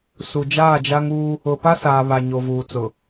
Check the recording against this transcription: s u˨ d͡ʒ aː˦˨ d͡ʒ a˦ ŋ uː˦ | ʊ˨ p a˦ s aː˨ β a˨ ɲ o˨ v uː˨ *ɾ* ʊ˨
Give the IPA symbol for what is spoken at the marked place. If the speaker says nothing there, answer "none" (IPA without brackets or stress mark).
t͡s